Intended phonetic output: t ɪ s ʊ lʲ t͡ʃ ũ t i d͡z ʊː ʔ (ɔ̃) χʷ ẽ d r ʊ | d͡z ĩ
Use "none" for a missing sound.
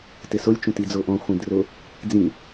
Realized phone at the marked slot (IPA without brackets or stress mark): ɔ̃